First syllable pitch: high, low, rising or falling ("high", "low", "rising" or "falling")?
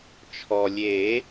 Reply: low